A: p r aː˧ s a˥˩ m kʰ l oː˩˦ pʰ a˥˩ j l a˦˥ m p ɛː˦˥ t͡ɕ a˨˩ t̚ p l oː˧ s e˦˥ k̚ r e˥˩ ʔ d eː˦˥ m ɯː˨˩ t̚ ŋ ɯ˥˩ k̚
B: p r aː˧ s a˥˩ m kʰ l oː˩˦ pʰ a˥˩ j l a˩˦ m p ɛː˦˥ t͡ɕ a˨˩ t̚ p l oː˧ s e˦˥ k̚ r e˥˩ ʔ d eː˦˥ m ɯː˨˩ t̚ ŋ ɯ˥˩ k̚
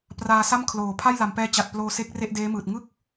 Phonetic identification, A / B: B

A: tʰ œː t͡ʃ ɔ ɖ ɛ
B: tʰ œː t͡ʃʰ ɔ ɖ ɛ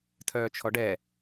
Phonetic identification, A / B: B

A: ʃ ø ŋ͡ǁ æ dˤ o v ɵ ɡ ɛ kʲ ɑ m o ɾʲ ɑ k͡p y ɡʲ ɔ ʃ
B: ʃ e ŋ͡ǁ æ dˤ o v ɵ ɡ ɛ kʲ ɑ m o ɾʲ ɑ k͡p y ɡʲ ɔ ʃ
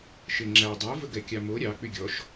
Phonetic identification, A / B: B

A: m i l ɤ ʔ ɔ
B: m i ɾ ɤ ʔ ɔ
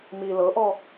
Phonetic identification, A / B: A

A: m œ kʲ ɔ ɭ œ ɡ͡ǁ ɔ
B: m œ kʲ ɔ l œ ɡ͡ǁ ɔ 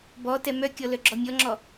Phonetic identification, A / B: B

